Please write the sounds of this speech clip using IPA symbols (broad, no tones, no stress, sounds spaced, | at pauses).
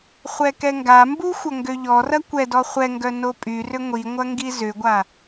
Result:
χʷ ɛ k ɛ ŋ ɡ a m b u xʷ ɐ ŋ ɡ ø ʎ ɔ r ɐ kʷ ɛ d ɔ χʷ ɛ ŋ ɡ œ n o pʼ y r ʏ ŋʷ i ŋʷ ɐ ŋ ɡ i z ʏ ɡʷ a